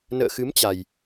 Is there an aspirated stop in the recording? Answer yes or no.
no